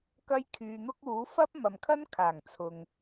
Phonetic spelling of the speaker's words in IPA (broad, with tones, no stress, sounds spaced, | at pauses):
k ɐ˥ j kʰ yː˧ n̪ ʊ˥ k̚ uː˨˥ f ɐ˥ p̚ m ɐ˨ m kʰ ɐ˥ n kʰ aː˨˩ ŋ t͡sʰ ʊ˨ ŋ